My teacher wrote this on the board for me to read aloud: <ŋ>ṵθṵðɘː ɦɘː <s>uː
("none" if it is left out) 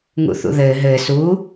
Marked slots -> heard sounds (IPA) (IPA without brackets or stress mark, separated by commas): ŋ, s